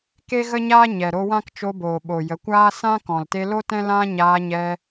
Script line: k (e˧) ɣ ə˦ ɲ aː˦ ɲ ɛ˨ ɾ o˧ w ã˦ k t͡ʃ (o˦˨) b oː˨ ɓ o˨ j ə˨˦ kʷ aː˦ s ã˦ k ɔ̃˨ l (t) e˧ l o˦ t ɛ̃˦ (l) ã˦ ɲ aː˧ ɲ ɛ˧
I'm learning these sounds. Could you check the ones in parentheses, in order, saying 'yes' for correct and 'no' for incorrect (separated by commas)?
no, no, yes, yes